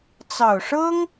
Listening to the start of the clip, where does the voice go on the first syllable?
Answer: low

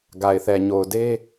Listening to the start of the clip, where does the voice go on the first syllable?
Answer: low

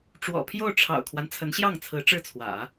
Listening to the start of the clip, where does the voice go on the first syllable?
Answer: low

